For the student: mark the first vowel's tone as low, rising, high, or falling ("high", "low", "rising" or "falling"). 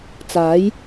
rising